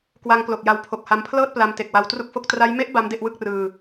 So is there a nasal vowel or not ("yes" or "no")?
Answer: no